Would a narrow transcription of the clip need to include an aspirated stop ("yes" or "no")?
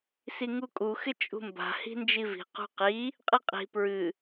no